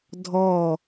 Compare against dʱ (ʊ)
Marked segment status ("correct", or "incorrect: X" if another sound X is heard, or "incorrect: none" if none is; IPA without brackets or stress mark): incorrect: ɔ